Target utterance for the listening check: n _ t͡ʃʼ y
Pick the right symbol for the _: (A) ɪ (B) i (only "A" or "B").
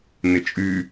A